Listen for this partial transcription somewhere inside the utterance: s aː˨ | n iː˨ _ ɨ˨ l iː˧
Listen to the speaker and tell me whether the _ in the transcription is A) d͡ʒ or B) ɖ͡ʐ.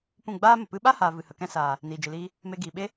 A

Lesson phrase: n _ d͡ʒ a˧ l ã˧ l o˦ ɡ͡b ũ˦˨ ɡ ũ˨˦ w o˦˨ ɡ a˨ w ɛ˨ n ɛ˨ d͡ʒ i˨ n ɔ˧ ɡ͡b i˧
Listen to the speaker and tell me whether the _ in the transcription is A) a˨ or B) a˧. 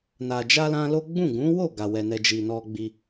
A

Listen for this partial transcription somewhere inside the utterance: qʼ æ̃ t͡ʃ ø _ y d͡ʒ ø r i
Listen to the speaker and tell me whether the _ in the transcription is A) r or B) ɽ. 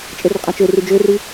A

